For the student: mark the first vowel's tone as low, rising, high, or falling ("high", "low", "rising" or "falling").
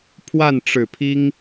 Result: falling